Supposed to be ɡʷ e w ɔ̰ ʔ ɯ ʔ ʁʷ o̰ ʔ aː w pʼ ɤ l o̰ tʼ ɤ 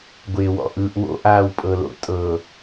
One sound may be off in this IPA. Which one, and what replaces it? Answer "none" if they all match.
ʁʷ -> w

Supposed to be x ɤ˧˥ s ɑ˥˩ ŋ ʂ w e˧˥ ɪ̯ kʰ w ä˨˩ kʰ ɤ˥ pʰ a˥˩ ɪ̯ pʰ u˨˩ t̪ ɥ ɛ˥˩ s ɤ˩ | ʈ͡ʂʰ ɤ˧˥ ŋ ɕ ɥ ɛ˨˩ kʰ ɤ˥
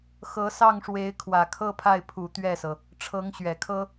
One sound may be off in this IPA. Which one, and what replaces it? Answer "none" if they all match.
none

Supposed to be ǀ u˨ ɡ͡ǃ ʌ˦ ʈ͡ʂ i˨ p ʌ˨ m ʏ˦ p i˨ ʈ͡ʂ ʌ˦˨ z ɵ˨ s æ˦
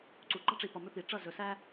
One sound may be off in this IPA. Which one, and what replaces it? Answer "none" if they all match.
none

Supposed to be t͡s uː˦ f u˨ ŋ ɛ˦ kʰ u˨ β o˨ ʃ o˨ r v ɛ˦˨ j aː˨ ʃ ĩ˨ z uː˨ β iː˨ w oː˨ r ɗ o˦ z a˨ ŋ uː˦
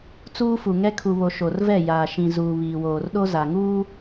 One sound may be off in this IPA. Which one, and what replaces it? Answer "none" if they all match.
none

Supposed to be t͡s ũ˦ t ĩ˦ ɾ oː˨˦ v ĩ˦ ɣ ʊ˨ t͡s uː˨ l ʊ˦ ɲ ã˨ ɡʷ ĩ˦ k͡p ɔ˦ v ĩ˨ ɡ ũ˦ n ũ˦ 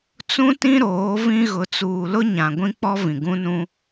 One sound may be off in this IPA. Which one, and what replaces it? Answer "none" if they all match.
none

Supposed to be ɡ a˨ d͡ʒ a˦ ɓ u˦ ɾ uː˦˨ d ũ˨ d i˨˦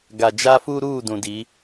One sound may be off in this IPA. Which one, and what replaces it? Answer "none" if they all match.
ɓ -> f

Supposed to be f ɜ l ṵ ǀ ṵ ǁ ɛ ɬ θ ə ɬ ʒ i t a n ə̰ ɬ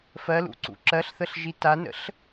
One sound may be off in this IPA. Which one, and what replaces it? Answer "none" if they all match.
ɛ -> ɜ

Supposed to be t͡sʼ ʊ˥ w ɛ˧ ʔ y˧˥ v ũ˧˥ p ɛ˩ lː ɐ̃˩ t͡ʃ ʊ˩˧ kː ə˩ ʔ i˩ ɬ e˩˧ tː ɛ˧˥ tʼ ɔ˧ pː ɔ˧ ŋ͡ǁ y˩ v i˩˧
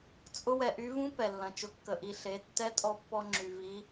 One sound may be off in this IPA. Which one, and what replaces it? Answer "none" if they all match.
none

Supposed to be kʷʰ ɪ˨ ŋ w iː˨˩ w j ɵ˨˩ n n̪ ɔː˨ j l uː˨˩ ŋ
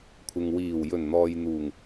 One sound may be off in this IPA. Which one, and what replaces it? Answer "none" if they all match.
l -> n̪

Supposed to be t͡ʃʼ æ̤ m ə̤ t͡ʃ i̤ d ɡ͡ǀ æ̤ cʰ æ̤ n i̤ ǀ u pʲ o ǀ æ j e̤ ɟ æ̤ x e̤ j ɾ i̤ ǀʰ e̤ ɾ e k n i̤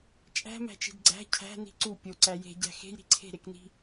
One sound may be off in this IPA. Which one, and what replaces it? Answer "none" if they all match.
ə̤ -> æ̤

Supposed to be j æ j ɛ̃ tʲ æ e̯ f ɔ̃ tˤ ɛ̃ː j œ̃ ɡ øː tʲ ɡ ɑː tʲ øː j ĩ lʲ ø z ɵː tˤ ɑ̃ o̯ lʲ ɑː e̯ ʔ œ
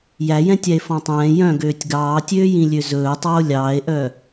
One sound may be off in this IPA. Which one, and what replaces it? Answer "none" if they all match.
ɑ̃ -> ɑ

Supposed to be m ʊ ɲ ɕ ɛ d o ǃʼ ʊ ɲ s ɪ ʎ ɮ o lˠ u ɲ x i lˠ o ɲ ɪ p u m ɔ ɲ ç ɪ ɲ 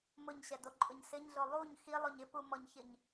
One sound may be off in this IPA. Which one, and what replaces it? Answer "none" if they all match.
ʎ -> ɲ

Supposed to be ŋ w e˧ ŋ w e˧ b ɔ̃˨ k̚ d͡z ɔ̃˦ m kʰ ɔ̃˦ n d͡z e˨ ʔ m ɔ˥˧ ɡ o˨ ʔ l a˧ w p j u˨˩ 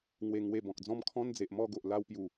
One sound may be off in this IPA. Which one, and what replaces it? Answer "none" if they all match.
none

